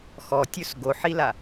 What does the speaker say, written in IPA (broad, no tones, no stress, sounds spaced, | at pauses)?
x ɔ tʲ ɵ s ɡ o ħ i l a